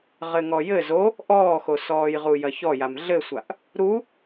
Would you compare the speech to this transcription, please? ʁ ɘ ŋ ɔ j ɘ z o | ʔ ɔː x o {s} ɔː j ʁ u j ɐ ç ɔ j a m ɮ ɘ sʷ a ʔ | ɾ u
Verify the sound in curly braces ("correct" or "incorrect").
correct